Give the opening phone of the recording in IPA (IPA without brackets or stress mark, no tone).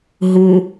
ɦ